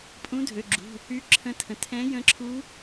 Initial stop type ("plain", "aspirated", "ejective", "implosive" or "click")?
ejective